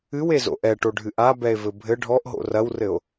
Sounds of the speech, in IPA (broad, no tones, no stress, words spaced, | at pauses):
ɨwezo̰ ʔɛʈoɖʱɨ ʔabɛe̯vɘ bʱɘ ɖʱɔʔɦo̰ rɐwrɘo̯